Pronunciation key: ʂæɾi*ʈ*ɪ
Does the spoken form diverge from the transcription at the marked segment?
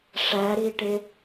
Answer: no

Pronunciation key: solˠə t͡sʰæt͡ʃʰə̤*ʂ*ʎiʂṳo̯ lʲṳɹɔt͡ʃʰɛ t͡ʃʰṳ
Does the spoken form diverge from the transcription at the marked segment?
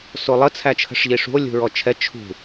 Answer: no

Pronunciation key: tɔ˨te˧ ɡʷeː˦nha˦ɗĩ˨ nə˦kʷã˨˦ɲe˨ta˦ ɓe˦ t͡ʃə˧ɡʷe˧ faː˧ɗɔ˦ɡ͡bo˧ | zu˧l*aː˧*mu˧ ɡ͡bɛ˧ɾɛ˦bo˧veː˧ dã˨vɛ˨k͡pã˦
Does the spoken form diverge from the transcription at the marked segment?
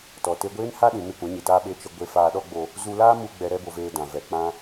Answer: yes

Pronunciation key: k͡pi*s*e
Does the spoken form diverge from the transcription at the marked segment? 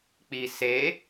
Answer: no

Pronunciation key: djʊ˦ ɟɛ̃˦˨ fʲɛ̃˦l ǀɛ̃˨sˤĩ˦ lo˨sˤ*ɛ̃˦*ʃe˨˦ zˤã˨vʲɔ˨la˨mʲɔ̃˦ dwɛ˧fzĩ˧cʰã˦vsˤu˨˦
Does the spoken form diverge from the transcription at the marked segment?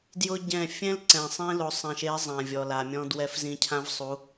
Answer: yes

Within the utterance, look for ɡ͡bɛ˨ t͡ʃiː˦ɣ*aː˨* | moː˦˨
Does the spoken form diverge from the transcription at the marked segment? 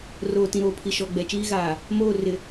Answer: no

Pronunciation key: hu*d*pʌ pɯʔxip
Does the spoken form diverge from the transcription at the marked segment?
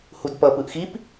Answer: no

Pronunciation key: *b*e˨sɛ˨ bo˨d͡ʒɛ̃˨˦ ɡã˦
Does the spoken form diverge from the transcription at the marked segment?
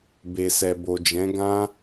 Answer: no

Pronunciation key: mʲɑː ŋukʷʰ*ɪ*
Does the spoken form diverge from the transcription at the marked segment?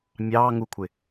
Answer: no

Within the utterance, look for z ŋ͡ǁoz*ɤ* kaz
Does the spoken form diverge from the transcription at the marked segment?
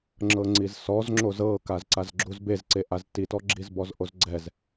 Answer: no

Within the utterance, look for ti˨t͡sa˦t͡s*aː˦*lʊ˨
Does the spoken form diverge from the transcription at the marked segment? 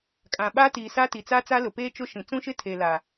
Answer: yes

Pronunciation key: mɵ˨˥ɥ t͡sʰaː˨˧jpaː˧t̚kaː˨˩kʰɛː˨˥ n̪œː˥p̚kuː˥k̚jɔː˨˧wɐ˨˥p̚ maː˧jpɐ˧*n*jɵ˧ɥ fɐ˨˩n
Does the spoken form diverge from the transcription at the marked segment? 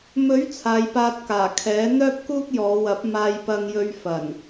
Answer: yes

